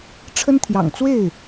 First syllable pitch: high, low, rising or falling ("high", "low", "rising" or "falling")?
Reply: high